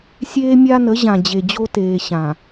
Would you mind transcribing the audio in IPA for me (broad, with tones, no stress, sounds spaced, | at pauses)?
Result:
sʲ eː˦ mʲ a˦ n ə˨˦ ʑ ã˨ d͡ʑ e˨ d͡ʑ o˦ t eː˨ ɕ ã˨